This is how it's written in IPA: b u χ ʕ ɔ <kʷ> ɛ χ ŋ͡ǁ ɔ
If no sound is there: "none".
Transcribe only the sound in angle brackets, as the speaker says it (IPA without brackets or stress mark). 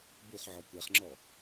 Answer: kʷ